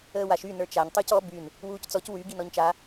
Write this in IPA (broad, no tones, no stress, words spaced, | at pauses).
əːwaʃ y nə˞t͡ʃaɲ tˤucɔ byn | wuːct͡sɔc wy ɡinɔɲt͡ʃa